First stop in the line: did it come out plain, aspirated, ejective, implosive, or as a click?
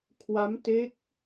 aspirated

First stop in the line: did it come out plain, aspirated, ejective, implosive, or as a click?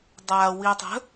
plain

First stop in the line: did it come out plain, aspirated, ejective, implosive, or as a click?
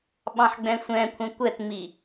implosive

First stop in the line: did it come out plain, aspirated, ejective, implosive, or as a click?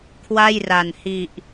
aspirated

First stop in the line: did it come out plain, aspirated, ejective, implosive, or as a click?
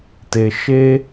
plain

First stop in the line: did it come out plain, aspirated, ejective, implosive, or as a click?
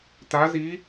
plain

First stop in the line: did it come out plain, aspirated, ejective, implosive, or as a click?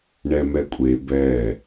ejective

